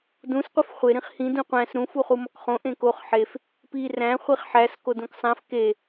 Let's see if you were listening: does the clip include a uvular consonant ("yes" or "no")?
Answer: yes